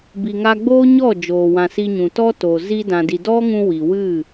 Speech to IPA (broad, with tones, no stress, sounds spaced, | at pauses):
b i˨ ŋ a˧ ɡ͡b oː˦ ɲ ɔ˦˨ d͡ʒ oː˨ w ã˨ s i˧ ɲ ũ˨ t ɔ˦ t o˨ z i˧ d ã˨ d i˨ d ɔ˦ ŋ ũ˧ w i˨ w ɨ˦˨